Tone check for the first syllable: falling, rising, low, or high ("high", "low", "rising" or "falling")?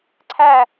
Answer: falling